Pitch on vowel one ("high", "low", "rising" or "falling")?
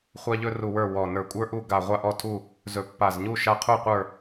high